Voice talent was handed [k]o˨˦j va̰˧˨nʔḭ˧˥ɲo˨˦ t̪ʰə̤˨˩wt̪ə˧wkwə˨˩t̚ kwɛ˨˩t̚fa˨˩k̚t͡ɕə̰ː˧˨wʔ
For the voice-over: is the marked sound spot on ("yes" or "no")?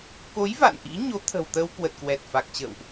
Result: yes